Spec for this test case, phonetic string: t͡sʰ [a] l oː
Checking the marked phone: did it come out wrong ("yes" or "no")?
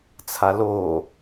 no